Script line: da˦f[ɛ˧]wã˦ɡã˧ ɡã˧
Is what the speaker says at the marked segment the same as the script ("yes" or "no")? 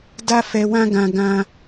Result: yes